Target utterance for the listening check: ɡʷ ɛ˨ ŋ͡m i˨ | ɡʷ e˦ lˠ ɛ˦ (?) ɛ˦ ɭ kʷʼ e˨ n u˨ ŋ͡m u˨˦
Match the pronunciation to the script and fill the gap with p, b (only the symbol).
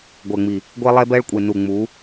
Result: b